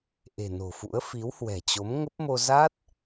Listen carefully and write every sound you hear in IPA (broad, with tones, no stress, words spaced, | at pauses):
ʔe̤˨˩ no̤˨˩fṵ˧˥ə̯ fi˨˦whwɛ̤˨˩t͡ɕo˨˦m ŋə˦˥p̚mo˧ za˦˥t̚